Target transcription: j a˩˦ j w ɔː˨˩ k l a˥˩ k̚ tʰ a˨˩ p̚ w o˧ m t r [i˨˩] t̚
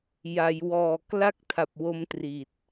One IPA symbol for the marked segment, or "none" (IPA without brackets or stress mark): i˨˩